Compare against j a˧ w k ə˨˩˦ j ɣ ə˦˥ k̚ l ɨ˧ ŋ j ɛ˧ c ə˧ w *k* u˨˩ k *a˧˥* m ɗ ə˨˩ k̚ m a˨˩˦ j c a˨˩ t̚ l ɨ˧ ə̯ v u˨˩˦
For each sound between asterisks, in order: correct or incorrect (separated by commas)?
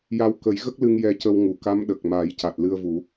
incorrect, correct